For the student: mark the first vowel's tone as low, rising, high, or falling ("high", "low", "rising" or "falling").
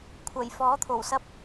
low